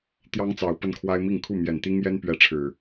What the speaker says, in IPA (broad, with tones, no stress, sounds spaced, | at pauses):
t̪ j ɑ˦ ŋ t͡s ɑ˨˦ ʊ̯ p ə˦ n kʰ w a˦ ɪ̯ m i˥˨ ŋ kʰ u˥˨ m j ɛ˨˩ n t̪ i˦ ŋ j ɛ˦ n p ɥ ɛ˨˦ ʈ͡ʂʰ ɻ̩˨˩